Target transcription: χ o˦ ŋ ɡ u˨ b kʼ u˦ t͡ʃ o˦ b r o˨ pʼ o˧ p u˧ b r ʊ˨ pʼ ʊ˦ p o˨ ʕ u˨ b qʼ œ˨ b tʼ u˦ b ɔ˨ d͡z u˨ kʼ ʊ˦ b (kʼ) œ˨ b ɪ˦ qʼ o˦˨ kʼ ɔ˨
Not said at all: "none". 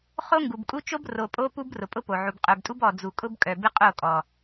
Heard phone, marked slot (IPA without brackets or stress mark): kʼ